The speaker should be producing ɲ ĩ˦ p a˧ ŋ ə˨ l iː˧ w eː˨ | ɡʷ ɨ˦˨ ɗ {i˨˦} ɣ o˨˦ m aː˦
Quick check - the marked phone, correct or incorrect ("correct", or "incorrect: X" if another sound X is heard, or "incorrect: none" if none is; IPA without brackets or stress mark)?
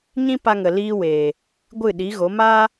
correct